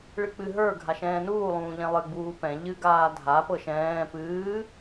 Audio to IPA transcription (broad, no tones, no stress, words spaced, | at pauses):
ɭɨk͡pɨ ɦə˞ ɡʱaʃɛ̃ːnuː lˠũːʎɛ̃lˠɨ ɡ͡buːpɛ̃ ʎɨ ɡaːdʱa pɤʃɛ̃ː pɨː